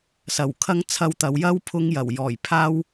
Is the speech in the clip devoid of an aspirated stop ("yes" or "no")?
no